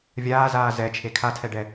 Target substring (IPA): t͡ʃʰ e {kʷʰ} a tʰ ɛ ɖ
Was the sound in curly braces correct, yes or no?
no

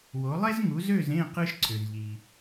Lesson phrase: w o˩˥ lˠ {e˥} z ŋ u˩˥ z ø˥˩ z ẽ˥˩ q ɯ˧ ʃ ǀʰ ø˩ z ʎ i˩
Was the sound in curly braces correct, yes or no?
yes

